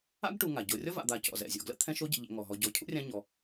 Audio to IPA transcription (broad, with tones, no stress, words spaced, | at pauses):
a̰˥ɡʈu˨ ŋa˩ɟo˨rʲɔ˥ va̰˨d̪a˨ cɔ̰˩zɛ̰˩ zʲɔ̰˩ɡlə̰˥t̪ʰɛ̃˦ʃ o˥ɟə̰˨ʎɛ̰˨ŋɔ˩ ɦɔ˨ɟɔ˨ cʰṵ˥rʲã˦ ɲɔ˨